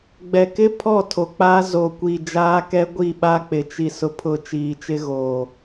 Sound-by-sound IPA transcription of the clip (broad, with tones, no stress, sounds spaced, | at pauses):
ɡ͡b ɛ˨ k ɪ˦ pʰ ɔ˦˨ tʰ o˨ k͡p a˦ z o˨ kʷ i˨ d͡ʒ aː˦ k ɛ˦ ɡʷ i˦˨ ɓ a˦ k͡p ɪ˨ t͡ʃ i˨ s ʊ˨ pʰ ʊ˨ t͡ʃ iː˨ t͡ʃ ɪ˦ ɣ o˨